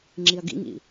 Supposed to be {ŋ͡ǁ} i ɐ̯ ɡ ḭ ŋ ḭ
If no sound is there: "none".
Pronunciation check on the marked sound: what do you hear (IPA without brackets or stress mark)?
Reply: ŋ͡ǁ